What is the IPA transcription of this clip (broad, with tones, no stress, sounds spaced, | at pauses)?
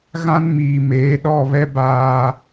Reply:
ɣ ã˦ n m iː˨ m eː˨˦ ɗ ɔ˦˨ β ɛ˦ b aː˨